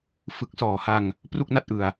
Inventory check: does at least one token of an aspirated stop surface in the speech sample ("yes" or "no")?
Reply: no